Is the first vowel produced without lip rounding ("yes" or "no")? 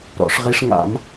no